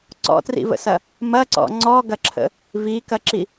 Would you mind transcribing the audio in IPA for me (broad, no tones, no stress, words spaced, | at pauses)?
ǀɔ̰trḭvə̰sɐ | mɐǀɔ̰ ŋ͡ǀɔɡɐǁʰə̰ | vikɐǁi